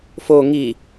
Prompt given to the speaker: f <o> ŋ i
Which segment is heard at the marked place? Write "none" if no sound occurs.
o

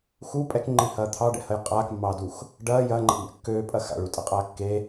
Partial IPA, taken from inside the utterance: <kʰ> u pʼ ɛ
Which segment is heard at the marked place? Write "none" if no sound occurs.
x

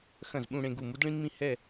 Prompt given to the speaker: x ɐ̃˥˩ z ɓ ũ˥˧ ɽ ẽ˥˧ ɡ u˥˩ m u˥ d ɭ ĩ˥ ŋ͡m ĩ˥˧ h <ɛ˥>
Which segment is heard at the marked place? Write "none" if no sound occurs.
ɛ˥˧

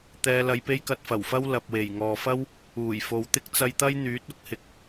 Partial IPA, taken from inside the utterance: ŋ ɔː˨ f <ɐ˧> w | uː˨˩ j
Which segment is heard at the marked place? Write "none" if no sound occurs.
ɐ˥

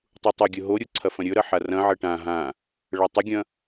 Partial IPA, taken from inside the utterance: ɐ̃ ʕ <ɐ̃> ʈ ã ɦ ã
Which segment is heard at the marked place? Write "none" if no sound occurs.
ɐ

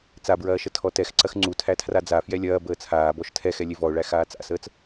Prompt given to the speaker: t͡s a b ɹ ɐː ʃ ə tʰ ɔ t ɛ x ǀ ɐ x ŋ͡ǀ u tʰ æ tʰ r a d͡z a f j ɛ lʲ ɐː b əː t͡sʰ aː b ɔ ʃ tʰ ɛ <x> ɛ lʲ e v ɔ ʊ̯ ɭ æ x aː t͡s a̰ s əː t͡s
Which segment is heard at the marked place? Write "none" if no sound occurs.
x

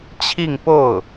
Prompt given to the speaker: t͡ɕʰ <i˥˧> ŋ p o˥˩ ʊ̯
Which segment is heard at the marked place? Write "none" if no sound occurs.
i˥˧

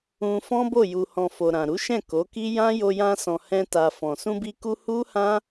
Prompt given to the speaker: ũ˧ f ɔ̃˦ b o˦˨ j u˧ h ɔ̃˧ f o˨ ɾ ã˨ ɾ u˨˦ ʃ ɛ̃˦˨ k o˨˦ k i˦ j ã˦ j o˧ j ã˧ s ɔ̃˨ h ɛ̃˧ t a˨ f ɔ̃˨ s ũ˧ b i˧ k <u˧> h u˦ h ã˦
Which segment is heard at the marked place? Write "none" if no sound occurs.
u˧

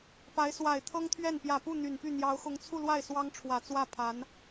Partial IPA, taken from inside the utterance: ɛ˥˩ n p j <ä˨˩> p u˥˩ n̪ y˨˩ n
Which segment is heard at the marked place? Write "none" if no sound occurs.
ä˨˩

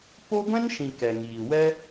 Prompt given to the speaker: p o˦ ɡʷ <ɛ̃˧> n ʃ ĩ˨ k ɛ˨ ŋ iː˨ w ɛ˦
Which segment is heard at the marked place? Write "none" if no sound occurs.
ɛ̃˦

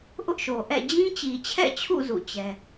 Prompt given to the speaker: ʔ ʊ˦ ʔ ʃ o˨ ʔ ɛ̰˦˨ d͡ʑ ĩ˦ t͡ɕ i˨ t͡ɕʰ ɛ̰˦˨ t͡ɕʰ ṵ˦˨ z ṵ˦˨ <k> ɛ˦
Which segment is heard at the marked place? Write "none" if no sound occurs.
t͡ɕ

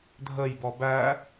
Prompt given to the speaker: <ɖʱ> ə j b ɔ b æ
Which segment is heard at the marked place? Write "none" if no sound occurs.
dʱ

